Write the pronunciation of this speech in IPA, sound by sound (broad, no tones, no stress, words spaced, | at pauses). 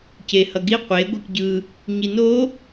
ce hʌɡi qʷe ɡʷikɟɯ | ɲino